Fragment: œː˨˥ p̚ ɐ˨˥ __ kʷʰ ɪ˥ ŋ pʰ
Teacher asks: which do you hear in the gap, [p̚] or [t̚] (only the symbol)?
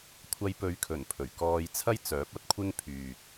t̚